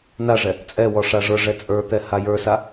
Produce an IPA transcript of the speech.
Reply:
naʐɛ | t͡sʼɛwɔ ʂaʐə˞ʐɛ t͡sʼə˞t̪ɛ hajə˞sa

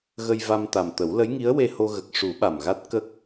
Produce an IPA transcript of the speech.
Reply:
ɣə˧jva˧mt̪a˨˩mt̪ə˨˩˦w lə˧˥jŋi˧˥ə̯we˧ho˧ ɣə˨˩k̚ʂu˨˩˦ ɓa˨˩mɣa˦˥t̚ kə˦˥k̚

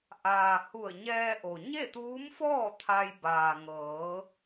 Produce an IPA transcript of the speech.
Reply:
ʔaː˩ hu˧˩ə̯ɲɛː˧ʔo˩ ɲe˥˨t̪uː˧˥mfɔː˥˨ t̪ʰa˧j baː˩ŋɤː˩˧

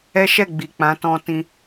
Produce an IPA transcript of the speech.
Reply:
ɛ˦ʃɛ˦˨ɡ͡bi˨k͡pã˨˦ tɔ̃˧tĩ˧

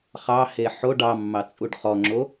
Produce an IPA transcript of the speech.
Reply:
χɑhe ħoɖ ɑmːɑ t͡sʼuɖχɔŋ͡ǁo

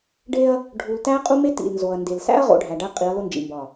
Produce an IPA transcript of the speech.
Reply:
ɖe˦ɐ̯ | ɖʱu˨ltæ˦ qʼu˦me˦ tḭ˨l nzo˨ɐ̯nde˨l sæ̰˦ɐ̯ʁo̰˨ ɖʱæ˨ɖæ˦qʼi˨˦ɐ̯ lo˦nd͡ʒḭ˨ mbɒ˦˨

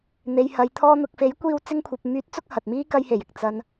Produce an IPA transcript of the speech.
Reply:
n̪e˨jhɐ˨j t̪ʰɔː˧n̪ʊ˨k̚fe˨˥jkʷiː˧w t͡sɪ˧ŋkʷʰɐ˨p̚myː˨˥t̚t͡sʊ˧k̚ hɐ˨t̚miː˥ kɐ˧jhe˨˩jɪ˨k̚ t͡sɐ˨n

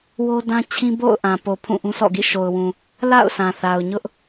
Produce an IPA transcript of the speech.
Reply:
wo˦dã˦t͡ɕʰĩ˦ bo̰˦˨ʊ̯ ʔã˨po˨ pʰũ˦˨ʔũ˦sɔ̰˦˨ɡḭ˦˨ ʃo˨ʊ̯wũ˨ | la̰˦˨ʊ̯sʰã˨θa˨ʊ̯ ɲʊ˦ʔ

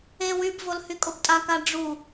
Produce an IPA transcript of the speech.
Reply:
e wybvolhy kʼobtʼaka ɖ͡ʐu

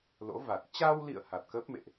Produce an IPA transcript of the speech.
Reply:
lo̰˧˥va˨˩t̚ t͡ɕa˧wlḭ˧˨ə̯ ha˨˩t̚kə˦˥p̚mḛ˧˨ʔ

